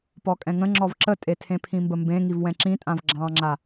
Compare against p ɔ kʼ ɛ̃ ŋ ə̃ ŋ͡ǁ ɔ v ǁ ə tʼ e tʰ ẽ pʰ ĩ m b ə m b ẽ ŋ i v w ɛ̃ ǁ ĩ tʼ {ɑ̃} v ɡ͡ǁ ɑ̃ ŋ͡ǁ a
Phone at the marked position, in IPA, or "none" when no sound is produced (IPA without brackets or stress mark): ã